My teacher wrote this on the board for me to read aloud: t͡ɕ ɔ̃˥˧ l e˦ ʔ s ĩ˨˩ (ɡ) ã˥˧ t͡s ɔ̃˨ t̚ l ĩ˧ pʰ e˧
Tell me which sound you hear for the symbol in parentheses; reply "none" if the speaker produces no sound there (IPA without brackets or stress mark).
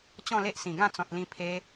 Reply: ɡ